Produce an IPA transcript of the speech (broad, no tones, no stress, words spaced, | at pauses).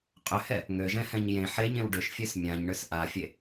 qʼʏhɛ | ŋøʒɛ̃hɛ̃ɲ jẽ ħeɲẽw ɖʏʃfʲøs mʲãɲɳʏs ʔafʲe